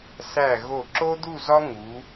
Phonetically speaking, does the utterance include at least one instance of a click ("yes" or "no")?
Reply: yes